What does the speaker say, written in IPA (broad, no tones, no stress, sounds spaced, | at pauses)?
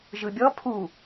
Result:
ʒ ɯ bʲ ɔ pʰ u